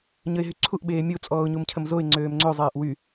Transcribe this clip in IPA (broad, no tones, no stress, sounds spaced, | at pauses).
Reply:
ɲ ə ɪ̯ ɦ y ǀʰ u ʔ ɓ eː mʲ o t͡sʼ ɔː ʊ̯ ɲ u m cʰ ə m z o ɪ̯ ŋ͡ǀ øː m ŋ͡ǀ ø zˤ eː ʔ w y